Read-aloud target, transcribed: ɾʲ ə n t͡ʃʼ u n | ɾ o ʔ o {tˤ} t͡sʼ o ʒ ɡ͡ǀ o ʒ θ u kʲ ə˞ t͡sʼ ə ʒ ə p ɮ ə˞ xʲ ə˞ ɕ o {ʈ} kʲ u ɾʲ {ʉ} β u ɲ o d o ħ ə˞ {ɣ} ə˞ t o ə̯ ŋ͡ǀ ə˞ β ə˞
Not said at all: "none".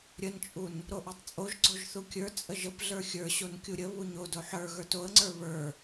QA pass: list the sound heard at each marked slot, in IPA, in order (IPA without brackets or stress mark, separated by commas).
tˤ, n, ə, ɣ